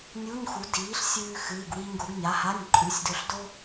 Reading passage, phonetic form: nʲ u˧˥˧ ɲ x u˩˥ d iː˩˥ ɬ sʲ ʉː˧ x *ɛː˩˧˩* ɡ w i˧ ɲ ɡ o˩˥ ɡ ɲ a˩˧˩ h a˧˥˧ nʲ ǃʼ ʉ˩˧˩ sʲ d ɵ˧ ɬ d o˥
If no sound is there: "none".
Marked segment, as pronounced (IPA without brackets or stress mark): ɨː˩˧˩